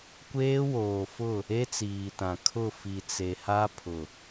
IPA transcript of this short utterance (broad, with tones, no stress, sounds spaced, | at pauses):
kʷ eː˦ w oː˨ f ʊ˦˨ | e˦ t͡s iː˨ t ã˨ kʰ ʊ˦˨ f i˨ t͡s e˨ h a˦ pʰ ʊ˨